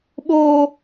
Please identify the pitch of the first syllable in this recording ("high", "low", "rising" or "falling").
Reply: high